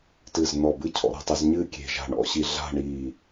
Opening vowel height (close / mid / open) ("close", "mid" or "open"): close